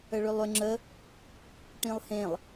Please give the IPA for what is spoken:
əɭʏlˠʏ ŋ͡ǁə | ʈĩlˠhẽlˠ

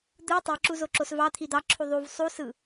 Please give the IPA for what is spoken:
d̪ɯ tˤiǁuzoǁos vɑt̪ʰi d̪ɑǁʰu ðˤuv sˤusɯ

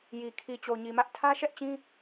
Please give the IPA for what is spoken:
ji˨ kʰi˨t͡ɕo˨ɲi˨mä˦ʔ tʰä˦ʃɛ˦ʔt͡ɕĩ˦

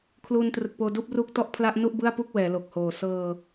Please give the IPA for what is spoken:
kʰluː˧ntrɯ˨˩k̚poː˧ duː˥˩p̚ruː˥˩k̚ tɔ˥˩ʔpʰla˦˥ʔnu˥˩ʔ bɯ˥˩a̯pu˥˩k̚ wɛː˩˦lo˨˩k̚hoː˨˩ sɤː˧

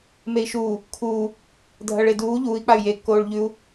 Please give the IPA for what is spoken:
mei̯ʃuː | kʰuː | dʱɐɭeduː ʎuːi̯k͡pay̯ jekːoːɭ ʎʉu̯

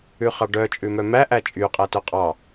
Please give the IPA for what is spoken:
ʉχɑɖœ t͡ʃʼʉmœmæ ʔæt͡ʃʼy qʼætœqʼɑ

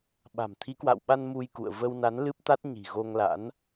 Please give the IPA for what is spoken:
ɓa̤˨˩m t̪ʰi˨˦kwa̰˧˨wɓa˧n mu˧jkṵ˧˨ə̯ və˧wna˨˦n lɨ˦˥p̚t̪a˦˥t̚ɲi̤˨˩ ɣo˧ŋla̰˧˥n

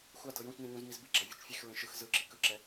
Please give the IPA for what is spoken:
xʷadɤ jũt͡ʃnĩ ɲũznizbiɡ͡ǁa vʲɔt͡ʃfʲexɹẽ ʃɯx zɯǁi kɯǁɛ

